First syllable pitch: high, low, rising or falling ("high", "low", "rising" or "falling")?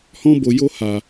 high